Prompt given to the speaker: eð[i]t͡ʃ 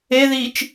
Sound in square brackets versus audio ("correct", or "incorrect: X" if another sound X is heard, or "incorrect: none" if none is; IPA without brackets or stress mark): correct